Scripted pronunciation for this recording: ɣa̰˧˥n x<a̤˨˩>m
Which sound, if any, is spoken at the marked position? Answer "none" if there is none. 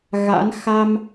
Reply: a˧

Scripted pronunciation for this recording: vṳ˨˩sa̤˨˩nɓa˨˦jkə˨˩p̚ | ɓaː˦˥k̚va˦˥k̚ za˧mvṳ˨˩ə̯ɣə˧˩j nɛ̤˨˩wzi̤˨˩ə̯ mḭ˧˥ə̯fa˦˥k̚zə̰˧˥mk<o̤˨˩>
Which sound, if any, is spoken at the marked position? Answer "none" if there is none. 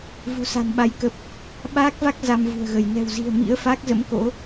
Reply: o̰˧˥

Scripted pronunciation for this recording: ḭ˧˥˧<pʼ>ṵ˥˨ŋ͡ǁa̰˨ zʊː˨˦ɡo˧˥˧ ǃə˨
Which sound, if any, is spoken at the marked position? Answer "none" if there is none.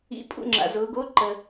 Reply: pʼ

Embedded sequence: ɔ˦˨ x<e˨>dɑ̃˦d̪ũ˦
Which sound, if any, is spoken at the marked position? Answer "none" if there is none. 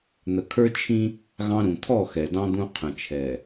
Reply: ɛ˨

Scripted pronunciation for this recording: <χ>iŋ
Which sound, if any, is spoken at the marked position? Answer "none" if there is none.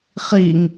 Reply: χ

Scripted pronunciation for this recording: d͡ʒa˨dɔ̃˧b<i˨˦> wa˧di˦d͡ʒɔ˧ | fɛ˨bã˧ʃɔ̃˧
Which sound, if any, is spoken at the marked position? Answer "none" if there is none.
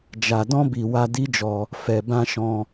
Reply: i˨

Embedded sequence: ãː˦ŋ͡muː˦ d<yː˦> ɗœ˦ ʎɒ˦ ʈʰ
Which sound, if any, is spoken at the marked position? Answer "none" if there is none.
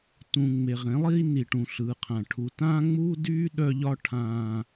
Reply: yː˦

